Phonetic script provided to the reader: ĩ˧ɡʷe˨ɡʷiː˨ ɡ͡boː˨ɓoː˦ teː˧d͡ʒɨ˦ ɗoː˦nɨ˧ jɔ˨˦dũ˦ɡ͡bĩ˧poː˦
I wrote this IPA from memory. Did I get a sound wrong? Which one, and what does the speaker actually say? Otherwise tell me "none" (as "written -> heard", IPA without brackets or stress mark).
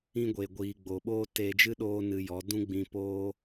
none